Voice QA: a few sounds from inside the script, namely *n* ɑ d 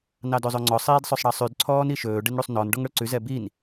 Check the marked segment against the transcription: correct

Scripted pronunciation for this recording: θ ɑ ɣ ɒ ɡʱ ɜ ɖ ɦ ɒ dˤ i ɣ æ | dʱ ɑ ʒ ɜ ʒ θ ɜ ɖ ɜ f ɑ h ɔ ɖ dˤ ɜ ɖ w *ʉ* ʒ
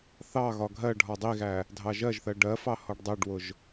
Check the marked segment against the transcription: incorrect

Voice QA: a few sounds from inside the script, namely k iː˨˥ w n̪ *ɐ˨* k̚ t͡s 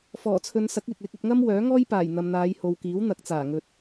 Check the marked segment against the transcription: incorrect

